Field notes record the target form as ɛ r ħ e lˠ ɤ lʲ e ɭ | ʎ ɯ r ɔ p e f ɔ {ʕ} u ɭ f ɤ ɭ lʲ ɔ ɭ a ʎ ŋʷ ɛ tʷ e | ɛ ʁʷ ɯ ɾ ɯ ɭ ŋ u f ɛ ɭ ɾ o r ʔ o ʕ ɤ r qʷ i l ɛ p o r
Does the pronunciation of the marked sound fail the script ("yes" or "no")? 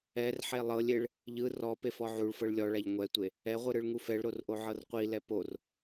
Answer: no